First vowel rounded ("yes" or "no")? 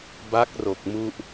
no